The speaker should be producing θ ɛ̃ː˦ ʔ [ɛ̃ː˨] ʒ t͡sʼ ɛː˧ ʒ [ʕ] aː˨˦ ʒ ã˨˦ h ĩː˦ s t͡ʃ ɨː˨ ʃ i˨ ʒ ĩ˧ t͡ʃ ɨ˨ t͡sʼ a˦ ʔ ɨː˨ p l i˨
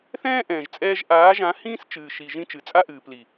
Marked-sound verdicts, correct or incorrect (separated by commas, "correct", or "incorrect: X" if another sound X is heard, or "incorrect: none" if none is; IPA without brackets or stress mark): correct, incorrect: ʔ